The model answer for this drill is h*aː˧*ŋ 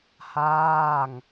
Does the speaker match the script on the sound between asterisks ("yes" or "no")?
no